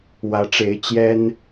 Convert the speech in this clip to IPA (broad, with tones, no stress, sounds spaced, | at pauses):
w ä˧˥ ʈ͡ʂ e˧˥ ɪ̯ t͡ɕ j ɛ˥ n